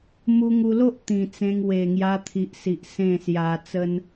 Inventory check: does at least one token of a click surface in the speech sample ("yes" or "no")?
no